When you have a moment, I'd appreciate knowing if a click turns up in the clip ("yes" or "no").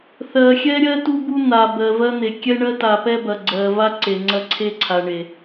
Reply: yes